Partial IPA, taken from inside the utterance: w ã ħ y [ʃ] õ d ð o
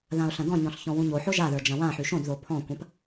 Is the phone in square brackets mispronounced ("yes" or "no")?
no